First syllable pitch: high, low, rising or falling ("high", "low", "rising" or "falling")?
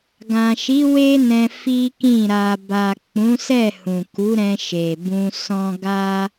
low